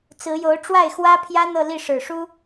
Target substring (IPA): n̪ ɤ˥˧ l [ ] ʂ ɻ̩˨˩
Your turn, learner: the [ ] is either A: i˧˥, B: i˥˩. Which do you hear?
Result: B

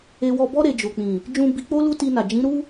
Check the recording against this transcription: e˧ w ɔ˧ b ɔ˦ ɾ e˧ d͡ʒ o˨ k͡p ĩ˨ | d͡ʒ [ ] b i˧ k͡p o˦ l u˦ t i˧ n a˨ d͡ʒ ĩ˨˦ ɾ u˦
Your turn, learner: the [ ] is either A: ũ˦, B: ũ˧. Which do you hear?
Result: B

